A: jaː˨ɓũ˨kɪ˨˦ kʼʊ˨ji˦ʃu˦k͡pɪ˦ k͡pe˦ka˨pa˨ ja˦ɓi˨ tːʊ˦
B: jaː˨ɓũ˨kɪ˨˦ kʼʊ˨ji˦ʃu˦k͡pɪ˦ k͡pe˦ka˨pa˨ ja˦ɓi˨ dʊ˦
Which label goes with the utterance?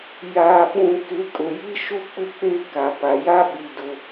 B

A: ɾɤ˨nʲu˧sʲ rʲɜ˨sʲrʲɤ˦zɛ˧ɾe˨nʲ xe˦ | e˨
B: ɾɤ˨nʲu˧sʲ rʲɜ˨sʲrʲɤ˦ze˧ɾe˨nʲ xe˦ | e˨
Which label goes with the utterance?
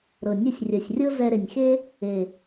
A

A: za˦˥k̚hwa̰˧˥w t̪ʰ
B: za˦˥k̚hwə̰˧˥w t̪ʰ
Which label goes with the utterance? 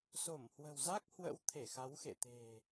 B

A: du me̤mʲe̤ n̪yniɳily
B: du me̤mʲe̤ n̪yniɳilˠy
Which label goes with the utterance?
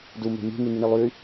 B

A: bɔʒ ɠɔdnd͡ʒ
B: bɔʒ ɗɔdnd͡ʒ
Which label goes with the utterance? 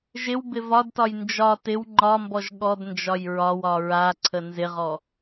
A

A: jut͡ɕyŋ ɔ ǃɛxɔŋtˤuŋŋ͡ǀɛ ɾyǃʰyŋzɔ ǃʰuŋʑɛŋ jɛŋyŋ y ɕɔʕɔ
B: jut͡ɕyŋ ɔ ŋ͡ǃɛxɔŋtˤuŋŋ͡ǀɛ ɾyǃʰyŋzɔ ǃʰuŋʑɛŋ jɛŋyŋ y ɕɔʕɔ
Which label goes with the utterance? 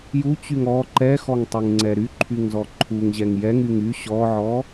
A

